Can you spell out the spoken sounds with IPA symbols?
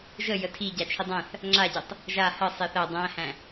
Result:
ʒə jətʰi ɟat͡ʃʰidˤæ̃θ | ŋ͡ǁaɟetˤ | ʒa hə sˤeθæ dˤæ̃hæ̃

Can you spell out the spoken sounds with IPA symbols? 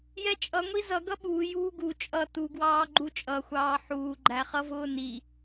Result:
jɛt͡ʃʼʌ ŋʷizʌ ɡʌɓuː juːɡu t͡ʃʼʌ tuɡwɑː ɡ͡ǃut͡ʃʼʌxʷɑː ħuːɡ͡ǃæχʌ vʊːni

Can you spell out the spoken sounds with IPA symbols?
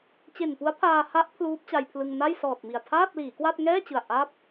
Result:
t͡ɕe˨˩npu˦˥a̯pʰaː˧ha˦˥ʔ pʰluː˦˥p̚t͡ɕa˧jpʰlɯ˧ŋ na˥˩jsɔː˨˩t̚mi˨˩a̯ tʰaː˥˩t̚ liː˩˦kwa˥˩t̚ ŋɛː˥˩t͡ɕɯ˨˩a̯ ʔa˥˩p̚

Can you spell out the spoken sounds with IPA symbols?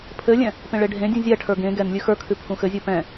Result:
pʰɘlʲɛ̃ | pẽɭeɖʱẽdʲũ zʲɛʈʰə˞ ɡẽ ɡɛnlʲʉ xə˞kʰʉ pʰũxɘzʲə˞ pɛ̃

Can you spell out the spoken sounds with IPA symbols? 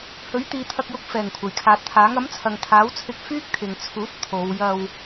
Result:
hɵ˨˥ɥt̪iː˨˧t̪ʰɐ˧k̚jʊ˧k̚ fɛː˨˩ŋkʷʰɐ˨˩jkʰaː˨t̚t̪ʰaː˨˥ŋ ɐ˨˥mt͡sʰɐ˨ŋ t̪ʰaː˨˥wt͡sʰɪ˧k̚ fyː˥k̚t̪ʰɪ˨ŋt͡sʰuː˨˥t̚ t̪ʰo˨˧w jɐ˧w

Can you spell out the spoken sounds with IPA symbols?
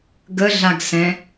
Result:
ɡəɮaɡsɛ̃

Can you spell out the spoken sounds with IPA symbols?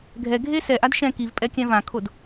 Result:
ɡʱɛɡʱe sɛʔad ʃɛ̃ kivpʼɛkʲɛ̃ vãkʰod

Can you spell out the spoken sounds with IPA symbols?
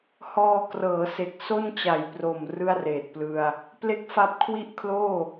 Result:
hɔː˧krɤː˩˦se˨˩k̚ so˥˩nt͡ɕa˨˩jpro˨˩m rɯ˥˩a̯reː˨˩t̚plɯ˧a̯ | ple˥˩k̚ fa˦˥p̚kʰwi˥˩ʔkʰloː˥˩

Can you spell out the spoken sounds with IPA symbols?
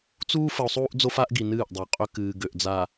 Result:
t͡suː˦ fə˨o̯sˤuː˦ʔ d͡zo˦fa˦ʔɡi˨ nɨː˦˨ʔdˤʏ˨o̯qʼø˦ kɨː˨ɡø˨ʔ d͡za˨

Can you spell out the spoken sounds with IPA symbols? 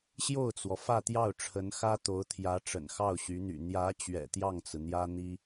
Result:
ɕjo˥˩ʊ̯t͡swɔ˩ fä˥˧t̪jɑ˥˩ʊ̯ʈ͡ʂʰə˧˥n xä˥t̪o˧˥ʊ̯t̪ʰjä˧˥ ʈ͡ʂə̰˨˩nxɑ˥˩ʊ̯ɕy˧˥n̪y̰˨˩ n̪jä˧˥ t͡ɕɥɛ̰˨˩t̪jɑ˥˩ŋt͡sɹ̩˩ n̪jä˥n̪i˥

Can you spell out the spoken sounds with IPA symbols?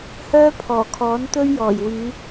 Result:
hœː˥pʰɔː˨˩kʰɔː˨˥nt̪ɵ˥ɥ jɔː˨˩jwyː˨˧

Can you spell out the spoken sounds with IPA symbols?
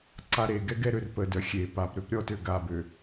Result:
ǀaɾeɡɛ ɡɛɾørpədœ xʲe papɾøp ɾʲɔtø ɡabø

